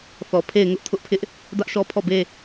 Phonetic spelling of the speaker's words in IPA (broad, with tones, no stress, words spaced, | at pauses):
θɔ˨ pʰe˦˨ɪ̯ŋʊ˦ʔ tʰʊ˦ʔpʰɪ˦ʔ | dä˦ʔʃɔ˦pʰɔ˦˨be˦